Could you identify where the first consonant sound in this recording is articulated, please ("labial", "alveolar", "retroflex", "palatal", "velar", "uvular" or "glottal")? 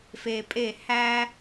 labial